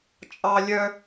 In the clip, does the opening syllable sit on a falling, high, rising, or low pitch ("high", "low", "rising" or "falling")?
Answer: high